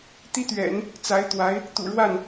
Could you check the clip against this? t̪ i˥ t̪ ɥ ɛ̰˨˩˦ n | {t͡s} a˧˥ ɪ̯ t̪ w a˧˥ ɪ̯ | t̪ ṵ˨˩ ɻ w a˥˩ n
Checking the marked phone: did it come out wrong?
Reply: no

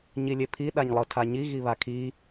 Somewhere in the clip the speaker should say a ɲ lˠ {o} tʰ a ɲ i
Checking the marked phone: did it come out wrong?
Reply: yes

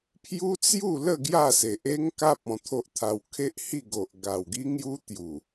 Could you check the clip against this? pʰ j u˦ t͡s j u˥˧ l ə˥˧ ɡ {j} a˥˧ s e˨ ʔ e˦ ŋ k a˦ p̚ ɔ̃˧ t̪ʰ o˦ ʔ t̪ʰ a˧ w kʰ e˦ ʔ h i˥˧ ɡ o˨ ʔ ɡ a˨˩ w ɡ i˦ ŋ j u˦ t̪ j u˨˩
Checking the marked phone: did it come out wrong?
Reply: no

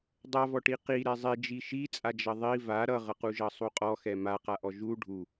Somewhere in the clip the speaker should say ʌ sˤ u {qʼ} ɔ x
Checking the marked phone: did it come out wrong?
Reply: no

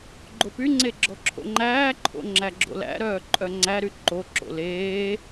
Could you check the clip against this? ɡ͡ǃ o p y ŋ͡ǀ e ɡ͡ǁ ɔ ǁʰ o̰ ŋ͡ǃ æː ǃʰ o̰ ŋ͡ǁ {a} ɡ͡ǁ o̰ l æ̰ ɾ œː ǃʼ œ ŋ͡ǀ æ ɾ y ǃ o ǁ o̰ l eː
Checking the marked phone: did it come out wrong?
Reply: yes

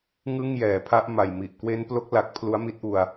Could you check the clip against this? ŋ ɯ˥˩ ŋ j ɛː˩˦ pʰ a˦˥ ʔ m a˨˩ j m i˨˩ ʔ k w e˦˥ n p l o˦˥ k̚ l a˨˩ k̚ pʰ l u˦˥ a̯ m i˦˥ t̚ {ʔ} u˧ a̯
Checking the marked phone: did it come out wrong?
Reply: no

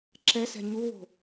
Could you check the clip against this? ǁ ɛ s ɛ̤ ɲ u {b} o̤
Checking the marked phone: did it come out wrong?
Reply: yes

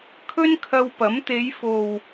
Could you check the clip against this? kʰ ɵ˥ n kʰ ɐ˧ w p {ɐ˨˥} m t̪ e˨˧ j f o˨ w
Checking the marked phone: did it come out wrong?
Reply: no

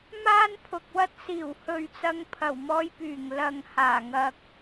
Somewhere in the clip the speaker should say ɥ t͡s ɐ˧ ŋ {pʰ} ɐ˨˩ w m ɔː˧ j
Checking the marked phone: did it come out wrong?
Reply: no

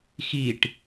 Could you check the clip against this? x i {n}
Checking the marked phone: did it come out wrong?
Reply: yes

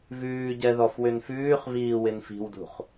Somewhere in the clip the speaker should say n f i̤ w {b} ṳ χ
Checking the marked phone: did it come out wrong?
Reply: yes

